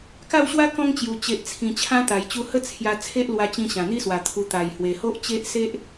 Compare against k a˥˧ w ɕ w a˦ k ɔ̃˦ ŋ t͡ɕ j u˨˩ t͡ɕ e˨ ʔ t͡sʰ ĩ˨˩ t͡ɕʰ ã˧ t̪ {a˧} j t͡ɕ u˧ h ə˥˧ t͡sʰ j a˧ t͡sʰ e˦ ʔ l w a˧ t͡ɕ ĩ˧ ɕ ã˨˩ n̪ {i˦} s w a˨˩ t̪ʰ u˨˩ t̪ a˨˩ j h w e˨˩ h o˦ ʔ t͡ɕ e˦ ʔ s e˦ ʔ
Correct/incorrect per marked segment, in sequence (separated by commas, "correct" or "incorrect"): incorrect, correct